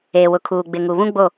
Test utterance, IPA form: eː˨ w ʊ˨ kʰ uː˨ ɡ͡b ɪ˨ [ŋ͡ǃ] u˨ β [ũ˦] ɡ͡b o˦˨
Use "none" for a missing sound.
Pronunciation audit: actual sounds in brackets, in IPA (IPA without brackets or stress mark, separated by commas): ŋ, ũ˦